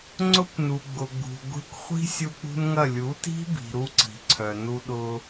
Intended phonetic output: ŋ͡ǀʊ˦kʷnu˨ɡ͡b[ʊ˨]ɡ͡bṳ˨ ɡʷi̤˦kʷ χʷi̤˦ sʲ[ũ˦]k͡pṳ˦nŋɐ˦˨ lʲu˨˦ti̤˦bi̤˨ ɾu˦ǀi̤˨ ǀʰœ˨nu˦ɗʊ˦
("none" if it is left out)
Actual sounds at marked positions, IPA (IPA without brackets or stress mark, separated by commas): ʊ˨, u˦